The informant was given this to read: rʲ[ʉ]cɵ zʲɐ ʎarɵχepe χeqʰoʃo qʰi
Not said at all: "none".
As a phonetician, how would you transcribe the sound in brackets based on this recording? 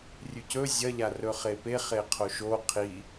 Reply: ʉ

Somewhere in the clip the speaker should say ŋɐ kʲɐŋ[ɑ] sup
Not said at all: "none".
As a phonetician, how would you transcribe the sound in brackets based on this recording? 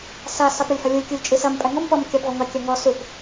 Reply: ɔ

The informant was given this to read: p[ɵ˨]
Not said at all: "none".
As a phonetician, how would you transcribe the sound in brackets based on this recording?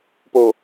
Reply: o˨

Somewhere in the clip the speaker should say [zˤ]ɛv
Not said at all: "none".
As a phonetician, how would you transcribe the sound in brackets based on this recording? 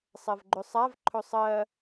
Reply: sˤ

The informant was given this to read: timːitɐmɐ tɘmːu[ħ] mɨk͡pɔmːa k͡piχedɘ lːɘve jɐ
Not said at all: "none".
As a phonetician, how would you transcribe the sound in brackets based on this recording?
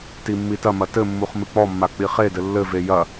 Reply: χ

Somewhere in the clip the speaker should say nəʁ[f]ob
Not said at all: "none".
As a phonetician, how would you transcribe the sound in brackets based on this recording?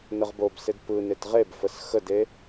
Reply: b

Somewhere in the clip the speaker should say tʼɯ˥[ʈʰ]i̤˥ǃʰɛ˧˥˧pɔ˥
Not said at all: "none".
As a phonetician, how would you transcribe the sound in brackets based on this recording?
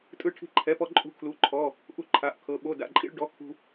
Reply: ʈʰ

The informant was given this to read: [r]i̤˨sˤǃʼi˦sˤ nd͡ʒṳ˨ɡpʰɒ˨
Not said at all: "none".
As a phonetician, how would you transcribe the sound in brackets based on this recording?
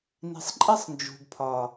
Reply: n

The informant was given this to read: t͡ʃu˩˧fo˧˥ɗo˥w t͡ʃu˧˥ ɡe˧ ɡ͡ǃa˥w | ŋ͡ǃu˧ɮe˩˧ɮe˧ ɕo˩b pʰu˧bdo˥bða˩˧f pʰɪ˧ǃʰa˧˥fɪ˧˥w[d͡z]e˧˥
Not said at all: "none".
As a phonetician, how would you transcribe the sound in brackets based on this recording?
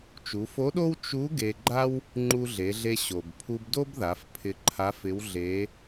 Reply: ɮ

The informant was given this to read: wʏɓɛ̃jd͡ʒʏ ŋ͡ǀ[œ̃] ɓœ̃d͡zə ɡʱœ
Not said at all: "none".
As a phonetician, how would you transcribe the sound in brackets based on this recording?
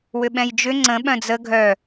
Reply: ə̃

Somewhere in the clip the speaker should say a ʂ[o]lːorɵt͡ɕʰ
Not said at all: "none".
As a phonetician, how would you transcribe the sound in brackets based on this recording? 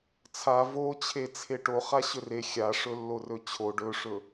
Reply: ɵ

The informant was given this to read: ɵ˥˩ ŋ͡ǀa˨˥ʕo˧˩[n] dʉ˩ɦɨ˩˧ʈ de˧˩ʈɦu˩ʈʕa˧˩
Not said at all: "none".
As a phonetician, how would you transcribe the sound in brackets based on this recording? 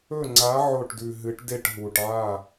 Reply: ʈ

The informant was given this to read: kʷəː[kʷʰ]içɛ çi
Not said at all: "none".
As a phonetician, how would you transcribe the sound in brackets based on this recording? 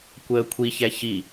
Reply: kʷʰ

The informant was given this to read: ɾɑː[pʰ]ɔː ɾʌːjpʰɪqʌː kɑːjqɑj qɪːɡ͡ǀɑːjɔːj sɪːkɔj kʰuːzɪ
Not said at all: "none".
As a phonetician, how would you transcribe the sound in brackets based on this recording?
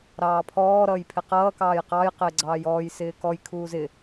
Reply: pʰ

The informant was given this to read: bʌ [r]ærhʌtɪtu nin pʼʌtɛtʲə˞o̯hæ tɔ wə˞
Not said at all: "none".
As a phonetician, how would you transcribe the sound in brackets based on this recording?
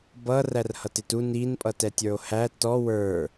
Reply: r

